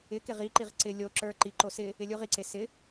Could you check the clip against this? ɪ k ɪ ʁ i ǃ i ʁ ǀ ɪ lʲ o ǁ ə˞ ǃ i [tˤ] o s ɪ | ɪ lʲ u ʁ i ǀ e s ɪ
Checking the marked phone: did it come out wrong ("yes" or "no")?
yes